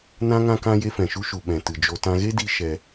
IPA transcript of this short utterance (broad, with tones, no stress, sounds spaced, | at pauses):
n ã˦ ŋ ã˦ k ã˦ j e˦ f ɛ̃˨ ʃ u˦ ʃ u˨ ɓ ɛ̃˨ t ɨ˨ d͡ʒ o˧ t ã˧ ɣ e˦ d i˧ ʃ ɛ˧